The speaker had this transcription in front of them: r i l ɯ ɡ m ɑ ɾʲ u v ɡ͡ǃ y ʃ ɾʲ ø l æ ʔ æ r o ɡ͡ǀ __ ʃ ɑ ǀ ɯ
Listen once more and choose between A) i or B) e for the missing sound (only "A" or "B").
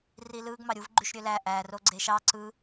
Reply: B